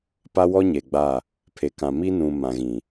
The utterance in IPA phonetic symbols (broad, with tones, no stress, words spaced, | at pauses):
pa˦wɔ˦ɲe˨ɡ͡ba˦˨ | pʰe˨kã˨ mi˦nũ˨ mã˨ɣĩ˨